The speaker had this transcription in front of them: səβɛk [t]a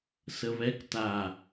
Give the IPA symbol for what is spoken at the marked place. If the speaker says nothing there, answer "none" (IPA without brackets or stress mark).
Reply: t